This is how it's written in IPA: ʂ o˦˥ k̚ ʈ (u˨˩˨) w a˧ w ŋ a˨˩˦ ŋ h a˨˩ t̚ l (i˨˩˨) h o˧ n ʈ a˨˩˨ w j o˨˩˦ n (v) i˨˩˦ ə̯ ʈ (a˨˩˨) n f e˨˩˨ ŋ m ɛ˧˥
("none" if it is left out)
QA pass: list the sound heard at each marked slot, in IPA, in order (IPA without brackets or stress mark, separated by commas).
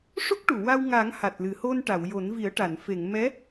u˨˩˨, ɨ˨˩˨, v, a˨˩˨